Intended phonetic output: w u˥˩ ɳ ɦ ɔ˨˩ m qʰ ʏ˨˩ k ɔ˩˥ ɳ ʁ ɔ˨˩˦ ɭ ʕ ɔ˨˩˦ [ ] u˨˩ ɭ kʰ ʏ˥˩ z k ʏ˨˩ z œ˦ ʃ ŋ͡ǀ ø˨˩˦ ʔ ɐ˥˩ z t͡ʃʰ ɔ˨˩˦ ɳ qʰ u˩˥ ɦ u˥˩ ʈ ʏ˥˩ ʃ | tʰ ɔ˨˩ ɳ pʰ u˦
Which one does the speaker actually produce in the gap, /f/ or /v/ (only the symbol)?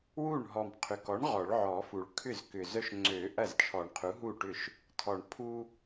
f